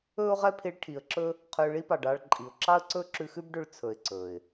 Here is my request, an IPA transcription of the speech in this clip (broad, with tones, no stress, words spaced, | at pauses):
ɵː˦ʊ̯ʁɛ˦pʰi˧ɭ ʈʰi˨ə̯ǁɵ˦ | qʰøː˧ɭi˦pɑ˨ɖɑː˧ɭ ǃʼi˨ʊ̯ ǁɑ˦ə̯ǀɵː˦ ǁʉ˧xʉ˦bɖø˧ɭ t͡sʰɵ˧ɪ̯ǀɵː˨ɪ̯